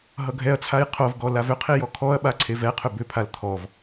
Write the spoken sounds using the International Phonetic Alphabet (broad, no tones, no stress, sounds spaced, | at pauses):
ɦ ʌ ɡʱ ɛ ɐ̯ t͡sʰ a j qʰ o v ɡ ɔ l a v ʏ qʰ i j ɔ kʰ ɔ ɐ̯ ɓ a ǀʰ e v ɛ qʰ ʏ b ʏ pʰ a l t̪ʰ ɔ v